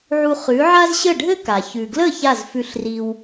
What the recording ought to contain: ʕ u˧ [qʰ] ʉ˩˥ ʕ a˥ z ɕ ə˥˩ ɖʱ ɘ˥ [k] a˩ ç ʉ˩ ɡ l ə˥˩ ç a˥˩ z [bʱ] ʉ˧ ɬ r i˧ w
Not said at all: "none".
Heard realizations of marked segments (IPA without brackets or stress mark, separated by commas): χ, k, f